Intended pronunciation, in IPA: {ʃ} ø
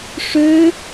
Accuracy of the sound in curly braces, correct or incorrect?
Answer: incorrect: ʂ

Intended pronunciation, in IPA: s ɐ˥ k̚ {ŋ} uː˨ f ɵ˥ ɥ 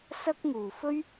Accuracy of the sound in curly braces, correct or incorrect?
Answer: correct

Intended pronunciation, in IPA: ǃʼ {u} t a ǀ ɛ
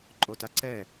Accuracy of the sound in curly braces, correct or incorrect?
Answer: incorrect: o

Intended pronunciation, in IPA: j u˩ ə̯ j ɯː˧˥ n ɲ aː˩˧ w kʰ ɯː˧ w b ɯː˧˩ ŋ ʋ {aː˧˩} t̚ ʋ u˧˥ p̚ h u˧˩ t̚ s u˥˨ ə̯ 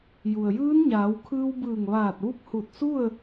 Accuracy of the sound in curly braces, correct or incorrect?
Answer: correct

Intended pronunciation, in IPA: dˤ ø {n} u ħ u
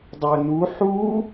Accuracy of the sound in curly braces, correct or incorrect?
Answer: correct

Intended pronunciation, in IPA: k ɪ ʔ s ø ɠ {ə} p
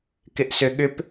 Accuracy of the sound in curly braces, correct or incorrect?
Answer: incorrect: ʏ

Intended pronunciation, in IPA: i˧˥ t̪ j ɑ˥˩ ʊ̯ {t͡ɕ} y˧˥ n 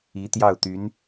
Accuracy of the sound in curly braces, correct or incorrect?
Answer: incorrect: t̪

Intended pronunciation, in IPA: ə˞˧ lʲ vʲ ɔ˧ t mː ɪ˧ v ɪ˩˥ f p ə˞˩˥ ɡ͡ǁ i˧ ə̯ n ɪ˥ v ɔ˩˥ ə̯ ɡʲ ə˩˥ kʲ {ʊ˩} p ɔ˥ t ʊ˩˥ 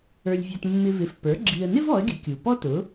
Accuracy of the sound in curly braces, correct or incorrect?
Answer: incorrect: u˩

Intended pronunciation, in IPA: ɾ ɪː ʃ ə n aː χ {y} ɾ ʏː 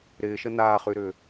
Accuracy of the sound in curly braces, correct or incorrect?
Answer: correct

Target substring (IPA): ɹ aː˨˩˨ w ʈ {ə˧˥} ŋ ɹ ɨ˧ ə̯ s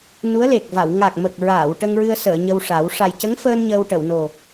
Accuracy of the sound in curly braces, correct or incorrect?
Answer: incorrect: ə˧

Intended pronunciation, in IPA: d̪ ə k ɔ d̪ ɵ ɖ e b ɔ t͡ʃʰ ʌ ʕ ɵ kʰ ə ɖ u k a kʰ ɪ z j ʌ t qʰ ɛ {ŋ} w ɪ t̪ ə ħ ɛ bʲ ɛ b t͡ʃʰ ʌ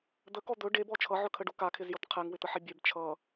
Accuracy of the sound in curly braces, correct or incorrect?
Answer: correct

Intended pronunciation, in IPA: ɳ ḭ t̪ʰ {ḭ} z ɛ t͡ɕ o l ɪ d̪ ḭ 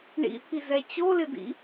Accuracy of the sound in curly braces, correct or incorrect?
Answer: incorrect: i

